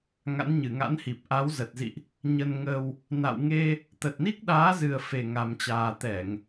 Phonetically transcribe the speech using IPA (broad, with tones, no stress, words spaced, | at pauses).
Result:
ŋa̰˧˥nɲɨ˧˩ŋa̰˧˥nhi˨˩p̚ ʔa˨˦wzə˨˩t̚zḭ˧˨ʔ | ɲə˧nŋə˧w | na̰˧˨wŋe˧ | t̪ə˨˩t̚ni˦˥k̚ɗaː˨˦zɨ˨˩ə̯ fe˨˩ŋa˨˩mt͡ɕaː˨˩ t̪ɛ˧˩˨ŋ